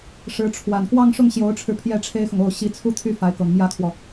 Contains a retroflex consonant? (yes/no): yes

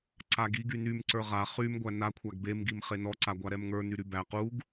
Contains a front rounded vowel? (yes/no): yes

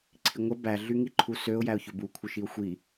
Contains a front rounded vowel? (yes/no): yes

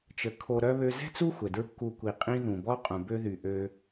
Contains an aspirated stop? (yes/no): yes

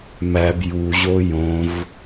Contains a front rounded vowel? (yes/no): no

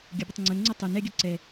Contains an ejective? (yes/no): no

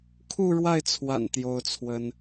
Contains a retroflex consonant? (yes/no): yes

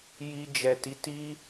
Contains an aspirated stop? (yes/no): no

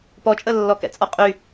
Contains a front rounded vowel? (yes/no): yes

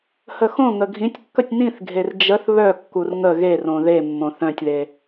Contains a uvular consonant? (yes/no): no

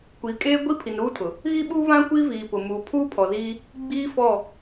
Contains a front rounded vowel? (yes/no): no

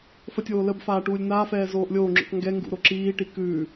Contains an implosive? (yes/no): no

